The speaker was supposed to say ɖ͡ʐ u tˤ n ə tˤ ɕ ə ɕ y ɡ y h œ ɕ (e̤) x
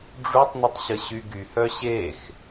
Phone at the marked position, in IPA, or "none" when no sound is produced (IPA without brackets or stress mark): e